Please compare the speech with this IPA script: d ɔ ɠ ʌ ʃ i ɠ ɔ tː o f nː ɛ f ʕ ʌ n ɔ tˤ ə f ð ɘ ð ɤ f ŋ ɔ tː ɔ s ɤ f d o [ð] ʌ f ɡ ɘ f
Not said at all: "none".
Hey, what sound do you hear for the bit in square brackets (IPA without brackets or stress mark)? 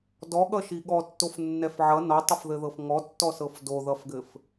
ð